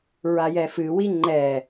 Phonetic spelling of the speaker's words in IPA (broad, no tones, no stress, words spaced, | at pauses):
ɹajɛfɨwi ŋ͡ǃɛ